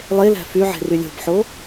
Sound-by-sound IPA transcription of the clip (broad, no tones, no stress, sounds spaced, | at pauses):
lˠ e l æ̤ f y ʕ e̤ r y lʲ o̤ b ħ o